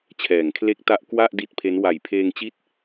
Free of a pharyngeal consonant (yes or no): yes